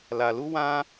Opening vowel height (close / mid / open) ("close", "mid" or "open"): open